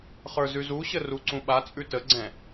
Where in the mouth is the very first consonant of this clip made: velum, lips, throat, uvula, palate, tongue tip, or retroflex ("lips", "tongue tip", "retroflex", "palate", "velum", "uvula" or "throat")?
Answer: uvula